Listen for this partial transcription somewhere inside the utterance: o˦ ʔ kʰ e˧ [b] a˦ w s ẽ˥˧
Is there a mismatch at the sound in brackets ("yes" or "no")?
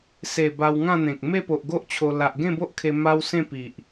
yes